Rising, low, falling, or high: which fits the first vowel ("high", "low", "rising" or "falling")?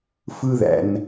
high